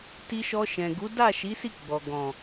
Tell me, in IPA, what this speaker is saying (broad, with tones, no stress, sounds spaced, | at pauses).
t i˧ ʃ ɔ˧ ʃ ɛ̃˨ ɡ u˨˦ d a˦˨ ʃ i˨˦ s i˦˨ ɡ͡b ɔ˨ ɡ ɔ̃˨